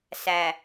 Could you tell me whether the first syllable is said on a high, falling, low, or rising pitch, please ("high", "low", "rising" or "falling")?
low